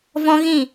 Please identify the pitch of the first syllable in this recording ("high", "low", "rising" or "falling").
high